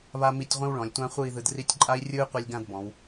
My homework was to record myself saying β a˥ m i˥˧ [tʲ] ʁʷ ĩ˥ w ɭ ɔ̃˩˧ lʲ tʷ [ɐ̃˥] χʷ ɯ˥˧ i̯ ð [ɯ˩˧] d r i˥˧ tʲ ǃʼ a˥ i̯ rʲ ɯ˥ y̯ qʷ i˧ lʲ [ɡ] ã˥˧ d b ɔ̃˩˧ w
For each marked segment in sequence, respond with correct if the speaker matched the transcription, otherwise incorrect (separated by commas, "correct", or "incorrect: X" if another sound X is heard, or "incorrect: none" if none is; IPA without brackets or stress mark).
correct, incorrect: ã˥, incorrect: ɯ˧, correct